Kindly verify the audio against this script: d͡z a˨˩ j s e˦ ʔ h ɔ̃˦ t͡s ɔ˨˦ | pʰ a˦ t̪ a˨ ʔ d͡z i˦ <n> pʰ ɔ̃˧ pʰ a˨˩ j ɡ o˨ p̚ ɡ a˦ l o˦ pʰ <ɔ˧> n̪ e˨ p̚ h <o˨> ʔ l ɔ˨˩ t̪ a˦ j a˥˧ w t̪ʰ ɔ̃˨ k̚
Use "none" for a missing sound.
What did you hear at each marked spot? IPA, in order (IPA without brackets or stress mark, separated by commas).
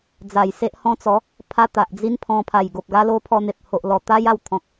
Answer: n, ɔ˧, o˨